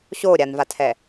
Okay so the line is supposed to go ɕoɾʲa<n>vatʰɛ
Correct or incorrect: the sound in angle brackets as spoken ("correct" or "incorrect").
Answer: correct